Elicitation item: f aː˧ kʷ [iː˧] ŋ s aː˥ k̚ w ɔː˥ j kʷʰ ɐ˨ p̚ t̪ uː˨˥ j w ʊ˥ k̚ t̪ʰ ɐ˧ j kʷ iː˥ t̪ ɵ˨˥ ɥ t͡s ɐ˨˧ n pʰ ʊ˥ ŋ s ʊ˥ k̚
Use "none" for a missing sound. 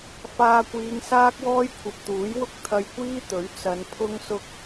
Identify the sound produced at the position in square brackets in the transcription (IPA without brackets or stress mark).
iː˨˧